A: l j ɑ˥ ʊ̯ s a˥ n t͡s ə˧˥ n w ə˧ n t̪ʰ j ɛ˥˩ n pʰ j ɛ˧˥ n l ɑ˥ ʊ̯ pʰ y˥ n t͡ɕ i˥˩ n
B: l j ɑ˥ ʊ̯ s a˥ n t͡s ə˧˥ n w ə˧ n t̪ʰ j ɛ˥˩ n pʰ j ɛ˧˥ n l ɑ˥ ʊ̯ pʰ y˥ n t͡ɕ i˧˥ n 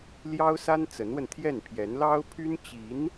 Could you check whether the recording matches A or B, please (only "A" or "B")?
B